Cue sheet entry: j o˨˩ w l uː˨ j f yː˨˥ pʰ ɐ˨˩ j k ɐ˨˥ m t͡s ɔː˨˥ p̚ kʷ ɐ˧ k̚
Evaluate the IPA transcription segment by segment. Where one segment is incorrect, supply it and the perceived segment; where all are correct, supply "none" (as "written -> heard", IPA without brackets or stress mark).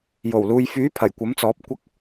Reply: k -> kʷ